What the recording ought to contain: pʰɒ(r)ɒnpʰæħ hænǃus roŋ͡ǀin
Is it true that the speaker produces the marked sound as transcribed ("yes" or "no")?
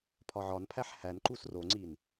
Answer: no